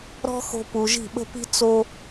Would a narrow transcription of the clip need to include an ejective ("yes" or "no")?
no